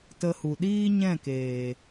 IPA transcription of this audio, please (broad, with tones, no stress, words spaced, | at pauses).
tə˧hu˨ ɗiː˦ ɲɛ̃˦˨keː˨